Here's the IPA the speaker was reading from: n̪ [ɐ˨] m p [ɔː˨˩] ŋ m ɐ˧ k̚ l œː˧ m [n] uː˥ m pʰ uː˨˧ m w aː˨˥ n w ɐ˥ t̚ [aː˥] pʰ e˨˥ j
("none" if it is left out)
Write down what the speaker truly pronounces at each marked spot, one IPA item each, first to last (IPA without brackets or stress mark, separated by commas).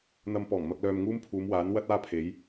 ɐ˧, ɔː˨˩, ŋ, aː˥